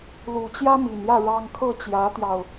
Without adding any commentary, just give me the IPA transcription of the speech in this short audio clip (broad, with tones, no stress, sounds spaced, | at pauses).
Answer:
l u˨˩ t͡ɕ j ä˥ m i˨˩ n j ä˥˩ ɻ ɑ˥ ŋ kʰ ɤ˥˩ t͡ɕ j ä˧˥ t̪ j ɑ˧ ʊ̯